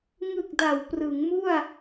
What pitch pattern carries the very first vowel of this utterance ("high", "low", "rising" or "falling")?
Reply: low